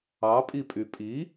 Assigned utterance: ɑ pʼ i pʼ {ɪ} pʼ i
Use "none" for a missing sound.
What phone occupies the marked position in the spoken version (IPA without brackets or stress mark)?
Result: y